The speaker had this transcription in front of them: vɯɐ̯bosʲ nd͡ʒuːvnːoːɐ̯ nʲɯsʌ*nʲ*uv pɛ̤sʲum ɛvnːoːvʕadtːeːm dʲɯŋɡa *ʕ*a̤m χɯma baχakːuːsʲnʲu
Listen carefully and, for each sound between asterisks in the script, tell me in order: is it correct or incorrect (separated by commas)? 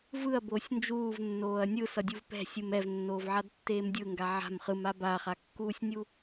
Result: incorrect, correct